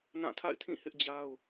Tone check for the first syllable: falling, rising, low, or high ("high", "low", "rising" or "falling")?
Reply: falling